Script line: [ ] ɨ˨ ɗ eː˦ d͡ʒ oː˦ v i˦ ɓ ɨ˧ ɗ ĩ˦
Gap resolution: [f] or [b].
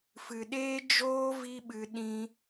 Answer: f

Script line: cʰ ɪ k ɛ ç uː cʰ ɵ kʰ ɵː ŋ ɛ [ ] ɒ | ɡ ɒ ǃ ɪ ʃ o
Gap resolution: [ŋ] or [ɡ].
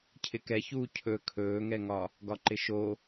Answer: ŋ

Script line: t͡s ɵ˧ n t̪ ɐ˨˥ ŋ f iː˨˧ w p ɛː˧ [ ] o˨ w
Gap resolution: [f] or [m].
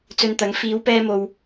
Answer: m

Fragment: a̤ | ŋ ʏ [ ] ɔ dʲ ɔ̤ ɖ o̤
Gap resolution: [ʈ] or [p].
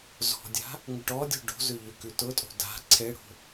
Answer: ʈ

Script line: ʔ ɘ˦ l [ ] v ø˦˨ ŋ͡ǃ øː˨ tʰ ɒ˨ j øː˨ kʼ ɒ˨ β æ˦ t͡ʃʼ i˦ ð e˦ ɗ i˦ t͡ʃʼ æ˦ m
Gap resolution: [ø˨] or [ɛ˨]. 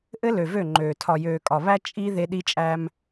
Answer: ø˨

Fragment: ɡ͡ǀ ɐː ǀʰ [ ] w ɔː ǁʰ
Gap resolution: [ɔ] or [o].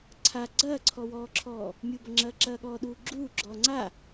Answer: ɔ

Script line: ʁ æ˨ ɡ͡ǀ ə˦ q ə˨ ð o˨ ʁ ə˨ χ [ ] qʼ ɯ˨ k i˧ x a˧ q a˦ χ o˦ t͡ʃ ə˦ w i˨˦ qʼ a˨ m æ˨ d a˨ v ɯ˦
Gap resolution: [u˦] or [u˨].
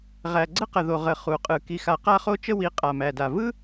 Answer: u˨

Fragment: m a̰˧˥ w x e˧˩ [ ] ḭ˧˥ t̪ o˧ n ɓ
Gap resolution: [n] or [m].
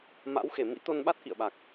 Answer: m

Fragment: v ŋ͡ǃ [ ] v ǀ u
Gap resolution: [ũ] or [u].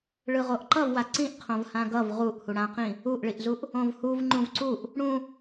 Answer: ũ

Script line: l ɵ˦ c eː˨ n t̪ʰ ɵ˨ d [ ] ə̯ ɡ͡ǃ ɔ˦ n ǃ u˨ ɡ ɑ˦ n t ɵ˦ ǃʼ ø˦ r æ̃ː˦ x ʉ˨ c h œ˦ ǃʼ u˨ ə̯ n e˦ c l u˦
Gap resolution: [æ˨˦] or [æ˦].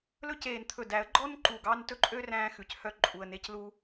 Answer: æ˨˦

